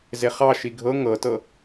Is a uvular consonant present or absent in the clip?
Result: present